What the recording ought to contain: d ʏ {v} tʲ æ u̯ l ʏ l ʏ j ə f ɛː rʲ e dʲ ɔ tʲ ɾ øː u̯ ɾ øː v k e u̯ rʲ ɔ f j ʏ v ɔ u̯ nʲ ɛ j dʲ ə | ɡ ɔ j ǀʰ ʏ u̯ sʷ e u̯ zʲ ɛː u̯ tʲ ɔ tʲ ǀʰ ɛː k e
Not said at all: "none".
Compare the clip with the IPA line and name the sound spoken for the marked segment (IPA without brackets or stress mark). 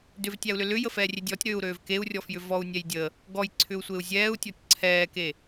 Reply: v